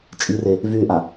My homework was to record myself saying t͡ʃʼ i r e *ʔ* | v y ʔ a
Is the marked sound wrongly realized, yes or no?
yes